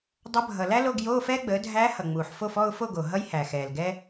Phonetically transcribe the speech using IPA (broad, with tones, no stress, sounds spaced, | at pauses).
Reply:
dˤ ʌ˧˥ bʱ ʌ˨˩ l æ˥ l o˧˥˧ ɡ j oː˧˥˧ f ɛː˥ ɡ͡b əː˩˥ dʱ æː˧˥ h ʌ˨˩ ŋ͡m uː˨˩ ħ f o˥˨ f ɔ˥˨ ʊ̯ f o˥˨ ɡ o˨˩ ɦ ʌ˥ j h æ˨˩ x ɛː˨˩ l ɡ ɛ˥